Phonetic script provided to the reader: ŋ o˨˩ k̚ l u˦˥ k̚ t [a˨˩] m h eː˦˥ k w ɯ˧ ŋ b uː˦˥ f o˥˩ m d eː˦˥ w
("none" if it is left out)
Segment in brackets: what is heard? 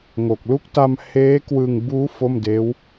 a˧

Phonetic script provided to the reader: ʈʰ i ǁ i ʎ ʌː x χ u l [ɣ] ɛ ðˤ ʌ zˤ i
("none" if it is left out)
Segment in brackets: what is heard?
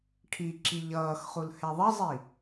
h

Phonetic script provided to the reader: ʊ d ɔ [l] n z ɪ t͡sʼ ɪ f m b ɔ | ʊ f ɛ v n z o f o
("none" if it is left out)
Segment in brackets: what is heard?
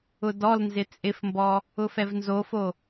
l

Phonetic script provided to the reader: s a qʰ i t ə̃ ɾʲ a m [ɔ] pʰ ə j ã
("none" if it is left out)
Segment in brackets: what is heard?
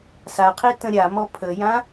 ɔ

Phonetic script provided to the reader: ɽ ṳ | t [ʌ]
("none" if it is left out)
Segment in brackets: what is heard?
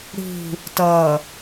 ʌ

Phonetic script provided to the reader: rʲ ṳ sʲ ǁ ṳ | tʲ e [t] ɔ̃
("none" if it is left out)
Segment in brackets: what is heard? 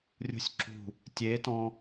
t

